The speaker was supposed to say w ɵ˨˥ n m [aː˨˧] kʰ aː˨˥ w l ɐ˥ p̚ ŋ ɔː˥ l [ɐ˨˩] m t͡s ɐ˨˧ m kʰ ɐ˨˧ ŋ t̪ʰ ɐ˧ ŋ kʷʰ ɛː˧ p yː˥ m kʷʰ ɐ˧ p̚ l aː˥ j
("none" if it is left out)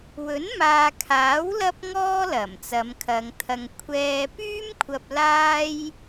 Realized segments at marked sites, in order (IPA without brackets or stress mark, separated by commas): aː˨, ɐ˨˩